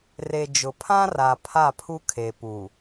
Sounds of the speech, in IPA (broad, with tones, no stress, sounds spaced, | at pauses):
r e˨ d͡ʒ ʊ˨ pʰ ã˦ r a˨ pʰ a˦˨ pʰ u˦ kʰ e˨ p u˨